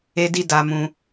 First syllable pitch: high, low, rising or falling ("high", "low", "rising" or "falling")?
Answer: high